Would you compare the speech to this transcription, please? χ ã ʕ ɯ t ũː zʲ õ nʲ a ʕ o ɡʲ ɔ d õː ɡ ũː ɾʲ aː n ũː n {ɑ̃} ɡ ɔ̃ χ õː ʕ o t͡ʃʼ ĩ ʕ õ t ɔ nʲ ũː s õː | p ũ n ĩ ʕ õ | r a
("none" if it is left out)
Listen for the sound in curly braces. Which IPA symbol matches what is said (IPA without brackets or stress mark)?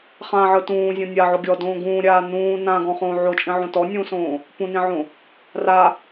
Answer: ã